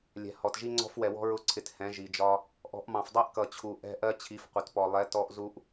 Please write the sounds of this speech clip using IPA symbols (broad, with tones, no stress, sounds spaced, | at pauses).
lʲ ɛ̤˨ h ɔ˨ t ʒ i˦ ŋ͡ǀ ɔ̤˦ f w ɛ˨ w ɔ̤˦ ɹ ʊ˦ ǀʰ ɪ˨˦ t h ɛ̃˨˦ ʒ i˨ d͡ʒ ɒ˦ | ʔ ɔ̤˨˦ ʔ m ɑ̃˨ f dˤ æ˦ ʔ k ʌ˨ t͡ɕʰ u˨ ʔ ɛ̤˦ ʔ ɜ˦ t͡ɕʰ i˨˦ f qʷ ə˨ t p ɔ˨ lˠ ɛ˨˦ t ɔ˦ ʔ z u˦ ʔ